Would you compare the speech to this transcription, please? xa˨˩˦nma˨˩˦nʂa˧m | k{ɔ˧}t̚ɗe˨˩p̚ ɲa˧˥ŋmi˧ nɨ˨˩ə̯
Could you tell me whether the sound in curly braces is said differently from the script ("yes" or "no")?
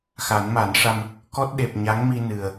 yes